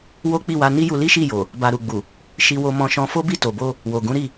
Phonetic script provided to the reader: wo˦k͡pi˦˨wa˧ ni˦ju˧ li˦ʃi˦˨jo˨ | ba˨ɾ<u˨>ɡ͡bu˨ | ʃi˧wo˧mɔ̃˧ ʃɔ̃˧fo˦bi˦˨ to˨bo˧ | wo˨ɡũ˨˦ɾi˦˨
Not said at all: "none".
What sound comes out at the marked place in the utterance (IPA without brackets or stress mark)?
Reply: u˨